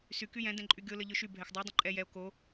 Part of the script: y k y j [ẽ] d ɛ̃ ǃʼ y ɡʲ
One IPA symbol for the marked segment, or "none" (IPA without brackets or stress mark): ɛ̃